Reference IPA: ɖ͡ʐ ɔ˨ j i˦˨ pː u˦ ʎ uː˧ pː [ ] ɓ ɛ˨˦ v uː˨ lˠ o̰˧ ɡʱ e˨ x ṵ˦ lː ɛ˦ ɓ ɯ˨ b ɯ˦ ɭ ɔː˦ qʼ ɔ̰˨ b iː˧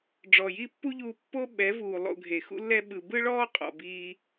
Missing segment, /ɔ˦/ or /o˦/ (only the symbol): o˦